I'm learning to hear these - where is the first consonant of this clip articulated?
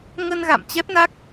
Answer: velum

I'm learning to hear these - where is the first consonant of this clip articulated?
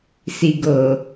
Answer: tongue tip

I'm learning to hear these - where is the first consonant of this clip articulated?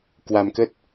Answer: velum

